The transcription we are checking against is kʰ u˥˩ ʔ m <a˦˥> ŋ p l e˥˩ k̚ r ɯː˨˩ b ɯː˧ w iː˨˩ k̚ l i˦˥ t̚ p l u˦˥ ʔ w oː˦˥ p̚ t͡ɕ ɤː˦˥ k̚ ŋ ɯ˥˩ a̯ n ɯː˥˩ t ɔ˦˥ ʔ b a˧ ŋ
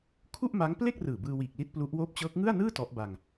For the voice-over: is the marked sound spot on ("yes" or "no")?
yes